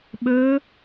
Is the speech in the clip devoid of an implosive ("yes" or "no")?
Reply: no